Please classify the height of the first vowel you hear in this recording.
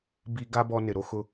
high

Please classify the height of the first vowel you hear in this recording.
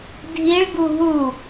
high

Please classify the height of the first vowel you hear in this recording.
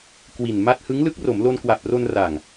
high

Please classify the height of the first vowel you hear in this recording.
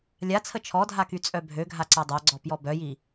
low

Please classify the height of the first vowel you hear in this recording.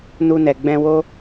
high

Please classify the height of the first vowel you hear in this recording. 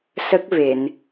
mid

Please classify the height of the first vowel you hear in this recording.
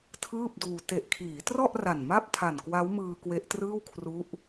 high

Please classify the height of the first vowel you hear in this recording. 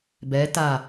mid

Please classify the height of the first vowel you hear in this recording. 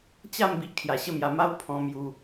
low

